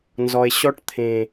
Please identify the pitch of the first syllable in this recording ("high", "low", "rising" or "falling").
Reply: low